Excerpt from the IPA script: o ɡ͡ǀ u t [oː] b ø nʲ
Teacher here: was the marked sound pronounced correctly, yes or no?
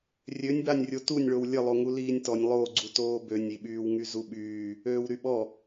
yes